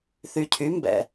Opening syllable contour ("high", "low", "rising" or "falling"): low